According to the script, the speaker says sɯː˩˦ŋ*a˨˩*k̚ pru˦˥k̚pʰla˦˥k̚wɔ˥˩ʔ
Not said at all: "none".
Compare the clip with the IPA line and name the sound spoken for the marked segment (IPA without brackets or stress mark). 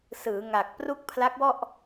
a˨˩